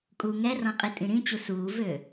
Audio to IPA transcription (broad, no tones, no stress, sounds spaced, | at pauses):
kʼ uː ŋ ɛ r ɔ̃ qʼ i tʼ ĩ ɾ ĩ t͡ɕ u s uː v øː